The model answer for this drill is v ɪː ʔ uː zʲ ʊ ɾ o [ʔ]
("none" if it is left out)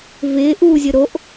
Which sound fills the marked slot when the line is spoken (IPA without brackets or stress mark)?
ʔ